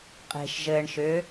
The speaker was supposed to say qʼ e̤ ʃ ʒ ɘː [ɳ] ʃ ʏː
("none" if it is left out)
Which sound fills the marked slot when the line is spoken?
ɳ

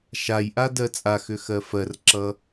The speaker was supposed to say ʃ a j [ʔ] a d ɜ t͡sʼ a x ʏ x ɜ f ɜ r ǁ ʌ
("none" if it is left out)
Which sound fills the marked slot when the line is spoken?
ʔ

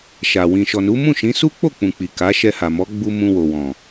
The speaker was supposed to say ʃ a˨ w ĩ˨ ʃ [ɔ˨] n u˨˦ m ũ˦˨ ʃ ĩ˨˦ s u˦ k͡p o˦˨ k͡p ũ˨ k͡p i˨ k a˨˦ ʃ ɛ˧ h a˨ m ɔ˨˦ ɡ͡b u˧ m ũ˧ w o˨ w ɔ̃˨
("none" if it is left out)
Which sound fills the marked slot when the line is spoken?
ɔ˨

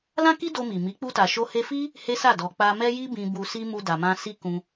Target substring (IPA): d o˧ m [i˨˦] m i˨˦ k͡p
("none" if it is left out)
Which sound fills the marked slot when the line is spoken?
i˨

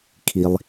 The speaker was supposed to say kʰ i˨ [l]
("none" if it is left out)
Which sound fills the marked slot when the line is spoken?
lˠ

